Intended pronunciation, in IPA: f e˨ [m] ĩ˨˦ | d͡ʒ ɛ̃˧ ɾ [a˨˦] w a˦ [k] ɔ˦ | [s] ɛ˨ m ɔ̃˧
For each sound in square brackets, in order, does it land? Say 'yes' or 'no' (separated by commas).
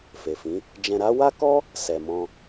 no, no, yes, yes